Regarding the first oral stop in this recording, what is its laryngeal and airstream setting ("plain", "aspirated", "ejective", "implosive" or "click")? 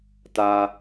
plain